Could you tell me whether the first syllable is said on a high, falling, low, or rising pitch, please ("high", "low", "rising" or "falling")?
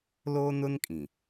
high